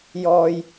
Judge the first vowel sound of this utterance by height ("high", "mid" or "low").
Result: mid